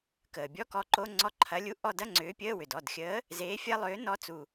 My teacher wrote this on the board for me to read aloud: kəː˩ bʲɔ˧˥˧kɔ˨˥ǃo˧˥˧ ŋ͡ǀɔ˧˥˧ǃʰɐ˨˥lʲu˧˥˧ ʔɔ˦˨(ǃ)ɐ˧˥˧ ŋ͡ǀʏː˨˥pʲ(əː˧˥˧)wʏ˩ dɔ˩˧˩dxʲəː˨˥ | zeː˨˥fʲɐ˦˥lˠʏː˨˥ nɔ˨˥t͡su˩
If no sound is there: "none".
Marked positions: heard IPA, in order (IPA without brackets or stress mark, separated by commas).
d, əː˧˥˧